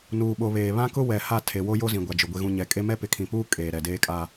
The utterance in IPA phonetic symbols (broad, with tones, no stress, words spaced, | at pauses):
nuː˨ɓo˨βeː˨ βã˦kʊ˦ wɛ˨ha˦˨ tʰe˨wo˦ jo˦zĩ˨ɡʷa˨d͡ʒʊ˨ ɡʷe˨ɣũ˨ɲɛ˨kʼe˦ mɛ˦pɪ˨kʰĩ˨puː˦ kʼeː˨ɾɛ˨deː˦kʼa˦